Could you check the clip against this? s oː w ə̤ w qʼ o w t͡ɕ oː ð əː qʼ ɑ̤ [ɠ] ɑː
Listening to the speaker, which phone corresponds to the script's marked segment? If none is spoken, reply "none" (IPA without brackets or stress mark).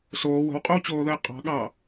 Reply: ɠ